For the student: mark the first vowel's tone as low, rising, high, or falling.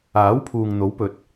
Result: rising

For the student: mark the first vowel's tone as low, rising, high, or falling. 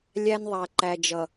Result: high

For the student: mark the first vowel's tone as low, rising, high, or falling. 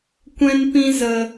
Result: high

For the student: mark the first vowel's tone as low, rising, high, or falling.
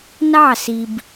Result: falling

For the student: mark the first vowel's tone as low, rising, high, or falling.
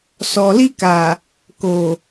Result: low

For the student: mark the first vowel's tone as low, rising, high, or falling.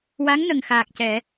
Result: rising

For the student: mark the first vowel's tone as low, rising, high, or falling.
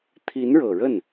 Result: rising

